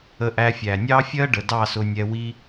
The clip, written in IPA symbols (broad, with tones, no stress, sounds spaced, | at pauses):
ə˧ ʔ æ˧ fʲ æ˨ nʲ ɑ˦ fʲ ɜ˦ ɖ ə˨ d ɑ˦˨ s ʊ˧ nʲ ɛ˧ w i˦